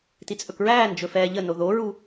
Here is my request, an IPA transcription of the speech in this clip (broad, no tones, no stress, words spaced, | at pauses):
tit͡sʼɵkɹæːn d͡ʒɵfɛːʎəno ðoɹu